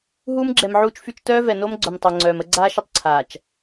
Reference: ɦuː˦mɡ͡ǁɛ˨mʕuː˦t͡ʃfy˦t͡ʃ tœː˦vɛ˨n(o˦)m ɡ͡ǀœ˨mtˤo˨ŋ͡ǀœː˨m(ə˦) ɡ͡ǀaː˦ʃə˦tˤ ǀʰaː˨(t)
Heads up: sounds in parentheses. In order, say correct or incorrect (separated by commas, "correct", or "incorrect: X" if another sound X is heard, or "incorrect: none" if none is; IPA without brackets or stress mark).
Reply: correct, correct, incorrect: t͡ʃ